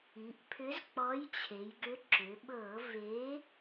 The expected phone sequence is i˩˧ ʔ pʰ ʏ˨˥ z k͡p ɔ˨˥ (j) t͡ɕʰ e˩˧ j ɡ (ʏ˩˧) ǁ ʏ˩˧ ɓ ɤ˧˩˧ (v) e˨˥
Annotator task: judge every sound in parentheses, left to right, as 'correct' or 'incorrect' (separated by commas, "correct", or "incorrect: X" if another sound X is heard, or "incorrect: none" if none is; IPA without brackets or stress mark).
correct, incorrect: ʏ˨˥, correct